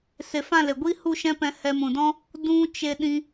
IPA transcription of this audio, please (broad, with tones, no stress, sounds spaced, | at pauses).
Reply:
s e˨ f ã˦˨ l e˨ ɡʷ i˦ h u˦˨ ʃ ɛ̃˦ p ɛ̃˧ h ɛ˧ m ũ˨ d ɔ̃˦ | d ũ˦ t͡ʃ e˧ ɗ ĩ˧